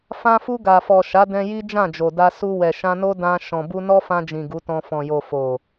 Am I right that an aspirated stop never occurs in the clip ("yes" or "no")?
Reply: yes